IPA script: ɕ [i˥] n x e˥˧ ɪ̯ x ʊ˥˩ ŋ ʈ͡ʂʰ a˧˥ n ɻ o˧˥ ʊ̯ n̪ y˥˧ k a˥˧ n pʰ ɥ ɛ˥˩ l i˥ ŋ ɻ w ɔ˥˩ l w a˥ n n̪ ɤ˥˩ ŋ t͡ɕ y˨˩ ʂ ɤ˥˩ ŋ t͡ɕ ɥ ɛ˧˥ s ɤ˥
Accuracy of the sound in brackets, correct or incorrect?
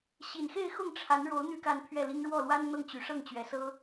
incorrect: i˨˩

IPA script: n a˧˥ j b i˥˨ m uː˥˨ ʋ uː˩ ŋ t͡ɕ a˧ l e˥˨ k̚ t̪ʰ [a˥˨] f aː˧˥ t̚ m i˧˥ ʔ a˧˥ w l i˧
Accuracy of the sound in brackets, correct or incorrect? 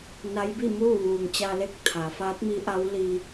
incorrect: a˩˧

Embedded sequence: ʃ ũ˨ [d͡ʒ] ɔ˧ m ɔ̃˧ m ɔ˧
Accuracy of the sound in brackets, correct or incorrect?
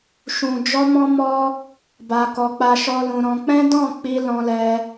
correct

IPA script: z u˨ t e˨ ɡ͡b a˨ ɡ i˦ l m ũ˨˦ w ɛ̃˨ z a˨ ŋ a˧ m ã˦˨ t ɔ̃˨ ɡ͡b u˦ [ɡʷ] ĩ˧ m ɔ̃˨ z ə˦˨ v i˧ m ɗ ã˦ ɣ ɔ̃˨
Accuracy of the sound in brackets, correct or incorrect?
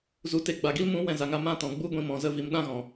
correct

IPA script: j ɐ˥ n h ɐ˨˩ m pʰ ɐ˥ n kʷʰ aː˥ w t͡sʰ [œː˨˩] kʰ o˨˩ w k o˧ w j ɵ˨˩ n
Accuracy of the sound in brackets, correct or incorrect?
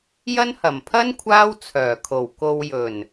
correct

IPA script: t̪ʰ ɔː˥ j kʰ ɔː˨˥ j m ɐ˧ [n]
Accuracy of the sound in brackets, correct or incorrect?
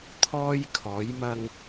incorrect: ŋ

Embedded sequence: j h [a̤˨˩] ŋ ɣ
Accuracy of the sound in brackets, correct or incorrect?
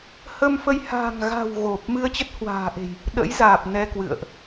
correct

